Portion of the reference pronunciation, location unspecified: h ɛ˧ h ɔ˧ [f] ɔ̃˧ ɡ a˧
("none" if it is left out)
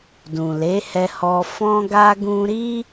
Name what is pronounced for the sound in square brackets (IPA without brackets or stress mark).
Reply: f